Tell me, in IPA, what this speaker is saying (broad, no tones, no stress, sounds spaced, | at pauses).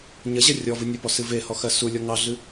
ɲ ɐ ʑ ɐ rʲ ɔ v ɨ nʲ ə p ɔ s ɨ v e h ɔ x ɜ s u lʲ ɔ ŋ ɑ ɮ ɨ